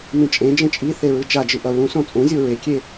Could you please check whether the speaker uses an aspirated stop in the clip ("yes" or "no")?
no